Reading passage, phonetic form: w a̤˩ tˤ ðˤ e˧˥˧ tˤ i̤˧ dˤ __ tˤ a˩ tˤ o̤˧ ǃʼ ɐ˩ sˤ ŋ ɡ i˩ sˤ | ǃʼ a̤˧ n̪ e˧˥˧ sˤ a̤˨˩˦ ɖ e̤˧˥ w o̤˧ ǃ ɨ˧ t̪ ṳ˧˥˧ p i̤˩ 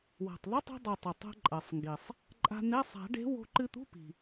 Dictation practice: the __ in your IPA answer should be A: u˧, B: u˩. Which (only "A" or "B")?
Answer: B